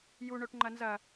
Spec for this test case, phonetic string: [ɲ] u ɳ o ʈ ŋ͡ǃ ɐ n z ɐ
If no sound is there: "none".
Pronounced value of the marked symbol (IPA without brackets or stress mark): j